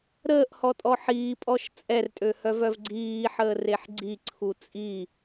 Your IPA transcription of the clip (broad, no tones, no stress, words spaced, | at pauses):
ɾəːʔhɔtʼɔ ħiːpʼɔʃ t͡sʼɛrtʼøhœvœv ɡ͡ǀiːħəːreħ ɡ͡ǀiǀʰu t͡sʼi